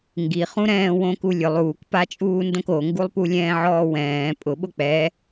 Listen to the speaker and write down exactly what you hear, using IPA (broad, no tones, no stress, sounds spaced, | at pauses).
ŋ ɡ i χ ũ ɾ ɛ̃ː w õ k u lʲ ʊ lˠ uː k p a t͡ʃʼ uː n d õ k o ŋ ɡ u lˠ p u lʲ ɛ̃ː ʕ ɔː w ɛ̃ː pʼ ʊ ɓ ʊ k͡p ɛ